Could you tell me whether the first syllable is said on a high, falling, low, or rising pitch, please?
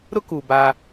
high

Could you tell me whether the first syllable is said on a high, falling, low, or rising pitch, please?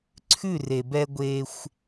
falling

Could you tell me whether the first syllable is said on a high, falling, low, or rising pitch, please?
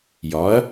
rising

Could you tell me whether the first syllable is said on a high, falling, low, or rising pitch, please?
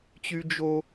high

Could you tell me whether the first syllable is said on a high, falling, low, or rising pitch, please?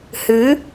rising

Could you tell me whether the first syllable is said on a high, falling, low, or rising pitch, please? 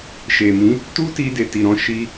low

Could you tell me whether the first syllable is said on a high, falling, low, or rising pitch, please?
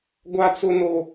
high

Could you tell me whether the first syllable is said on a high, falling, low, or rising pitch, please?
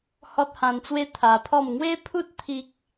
high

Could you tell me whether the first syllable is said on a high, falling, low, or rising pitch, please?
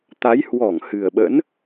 rising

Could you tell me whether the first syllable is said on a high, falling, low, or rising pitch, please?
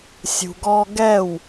low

